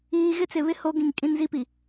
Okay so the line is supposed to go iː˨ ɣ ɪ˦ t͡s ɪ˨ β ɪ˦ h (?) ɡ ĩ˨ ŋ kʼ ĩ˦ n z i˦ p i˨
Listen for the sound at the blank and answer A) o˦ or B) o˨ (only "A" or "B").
A